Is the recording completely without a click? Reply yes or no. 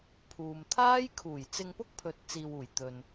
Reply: yes